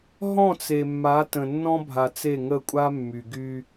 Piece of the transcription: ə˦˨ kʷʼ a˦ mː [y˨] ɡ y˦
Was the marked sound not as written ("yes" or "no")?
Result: no